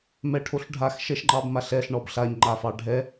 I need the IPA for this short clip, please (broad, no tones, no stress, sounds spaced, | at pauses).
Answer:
m ɛ ʈʰ o ɬ ɖʱ a x ʃ ɛ ʃ ŋ͡ǃ ɑ b m a ɬ ɛ ɬ ɳ ɔ b ɬ a ɲ ŋ͡ǃ a f ɑ ɖʱ ɛ